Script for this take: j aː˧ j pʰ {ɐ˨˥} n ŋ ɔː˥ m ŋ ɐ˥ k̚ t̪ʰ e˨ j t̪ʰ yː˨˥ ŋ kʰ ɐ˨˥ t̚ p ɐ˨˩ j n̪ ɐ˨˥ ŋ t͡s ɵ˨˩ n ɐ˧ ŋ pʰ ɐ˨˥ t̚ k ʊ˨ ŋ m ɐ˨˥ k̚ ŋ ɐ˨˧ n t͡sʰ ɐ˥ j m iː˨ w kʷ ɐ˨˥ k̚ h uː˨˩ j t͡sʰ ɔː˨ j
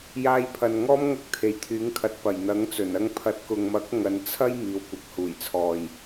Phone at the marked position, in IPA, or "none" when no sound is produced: ɐ˨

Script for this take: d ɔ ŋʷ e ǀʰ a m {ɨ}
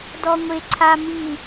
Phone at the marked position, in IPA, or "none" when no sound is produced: i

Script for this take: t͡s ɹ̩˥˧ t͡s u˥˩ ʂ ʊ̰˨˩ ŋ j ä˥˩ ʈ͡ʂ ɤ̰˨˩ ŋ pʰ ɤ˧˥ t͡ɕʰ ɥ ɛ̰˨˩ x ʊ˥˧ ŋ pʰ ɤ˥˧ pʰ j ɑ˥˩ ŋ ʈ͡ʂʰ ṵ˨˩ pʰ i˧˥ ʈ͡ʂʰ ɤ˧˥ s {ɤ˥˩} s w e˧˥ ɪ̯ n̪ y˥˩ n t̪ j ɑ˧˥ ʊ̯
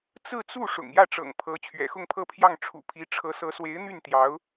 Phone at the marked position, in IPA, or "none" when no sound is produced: ɤ˧˥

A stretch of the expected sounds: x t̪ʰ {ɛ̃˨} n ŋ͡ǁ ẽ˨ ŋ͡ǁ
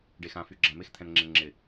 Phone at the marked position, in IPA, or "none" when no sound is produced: ɛ̃˨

